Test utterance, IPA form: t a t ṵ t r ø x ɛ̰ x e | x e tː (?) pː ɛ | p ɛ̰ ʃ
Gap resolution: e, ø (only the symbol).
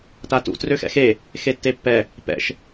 e